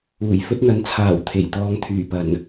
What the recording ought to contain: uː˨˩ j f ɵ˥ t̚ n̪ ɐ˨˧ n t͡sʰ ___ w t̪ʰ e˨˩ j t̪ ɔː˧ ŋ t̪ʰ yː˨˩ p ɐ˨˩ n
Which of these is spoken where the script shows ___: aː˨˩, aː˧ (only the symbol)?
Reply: aː˨˩